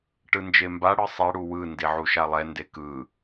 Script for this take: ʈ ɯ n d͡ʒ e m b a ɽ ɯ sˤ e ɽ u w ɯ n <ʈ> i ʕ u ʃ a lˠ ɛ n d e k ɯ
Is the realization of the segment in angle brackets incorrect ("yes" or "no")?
yes